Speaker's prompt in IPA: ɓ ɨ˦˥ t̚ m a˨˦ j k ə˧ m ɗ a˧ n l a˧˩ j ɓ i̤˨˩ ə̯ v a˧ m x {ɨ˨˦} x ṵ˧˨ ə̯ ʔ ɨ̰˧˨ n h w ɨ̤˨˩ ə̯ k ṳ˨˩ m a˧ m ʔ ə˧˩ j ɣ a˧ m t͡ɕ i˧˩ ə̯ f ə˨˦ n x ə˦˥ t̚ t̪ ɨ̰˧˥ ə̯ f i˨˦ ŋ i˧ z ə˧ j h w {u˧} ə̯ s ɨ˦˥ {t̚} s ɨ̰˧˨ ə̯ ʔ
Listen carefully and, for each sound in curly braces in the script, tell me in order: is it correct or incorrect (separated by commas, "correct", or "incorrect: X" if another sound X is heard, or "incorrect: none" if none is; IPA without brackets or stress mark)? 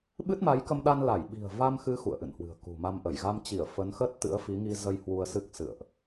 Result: correct, correct, incorrect: k̚